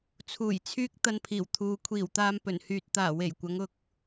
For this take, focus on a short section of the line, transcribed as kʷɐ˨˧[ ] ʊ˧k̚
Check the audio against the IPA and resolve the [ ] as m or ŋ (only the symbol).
ŋ